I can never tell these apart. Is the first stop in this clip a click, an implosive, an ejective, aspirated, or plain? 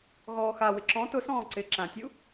click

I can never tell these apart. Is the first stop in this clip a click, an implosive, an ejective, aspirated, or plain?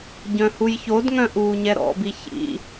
plain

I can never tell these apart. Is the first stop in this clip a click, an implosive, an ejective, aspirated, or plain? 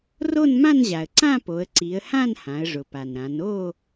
click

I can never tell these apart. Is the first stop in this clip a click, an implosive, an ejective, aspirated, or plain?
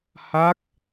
plain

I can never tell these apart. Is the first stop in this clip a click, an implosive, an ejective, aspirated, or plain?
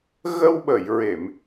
implosive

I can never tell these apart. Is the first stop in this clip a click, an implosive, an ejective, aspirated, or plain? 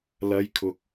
aspirated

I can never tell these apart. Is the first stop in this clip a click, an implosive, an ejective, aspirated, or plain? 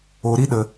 implosive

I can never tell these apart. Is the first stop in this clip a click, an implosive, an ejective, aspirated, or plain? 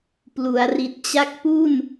plain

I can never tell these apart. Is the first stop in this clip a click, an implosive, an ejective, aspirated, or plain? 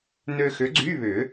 click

